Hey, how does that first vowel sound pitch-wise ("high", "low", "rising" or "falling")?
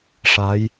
rising